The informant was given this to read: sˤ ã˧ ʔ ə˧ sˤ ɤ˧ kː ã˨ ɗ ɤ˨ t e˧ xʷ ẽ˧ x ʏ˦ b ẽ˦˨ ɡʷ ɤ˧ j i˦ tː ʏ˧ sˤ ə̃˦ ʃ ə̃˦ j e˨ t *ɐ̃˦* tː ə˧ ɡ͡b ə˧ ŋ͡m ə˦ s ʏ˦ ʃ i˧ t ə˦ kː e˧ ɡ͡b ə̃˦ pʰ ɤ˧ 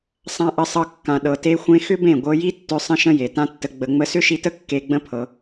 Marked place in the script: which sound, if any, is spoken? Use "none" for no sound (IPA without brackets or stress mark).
ã˦